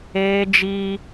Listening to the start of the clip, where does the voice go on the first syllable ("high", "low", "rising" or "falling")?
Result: high